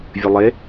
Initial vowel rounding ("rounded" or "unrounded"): unrounded